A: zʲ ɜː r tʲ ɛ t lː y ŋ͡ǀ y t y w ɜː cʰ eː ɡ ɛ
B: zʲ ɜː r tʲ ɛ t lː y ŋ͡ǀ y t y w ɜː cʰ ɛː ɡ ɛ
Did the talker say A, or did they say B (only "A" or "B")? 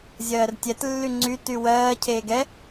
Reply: A